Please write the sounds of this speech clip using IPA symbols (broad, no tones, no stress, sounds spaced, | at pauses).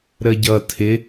ɾ ə ɟ ʌ tʰ ɪ